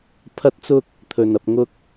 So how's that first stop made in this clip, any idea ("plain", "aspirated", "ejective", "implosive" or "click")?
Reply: aspirated